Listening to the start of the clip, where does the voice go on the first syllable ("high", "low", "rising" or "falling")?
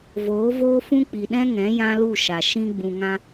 rising